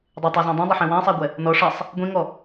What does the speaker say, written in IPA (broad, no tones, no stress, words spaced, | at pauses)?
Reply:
dˤetˤazæ̃ dˤẽdˤaħẽ wæ̃sˤæɡʷɛ | nɔ ʂasˤ | ɡʷĩŋɔ